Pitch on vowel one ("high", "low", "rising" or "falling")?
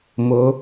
rising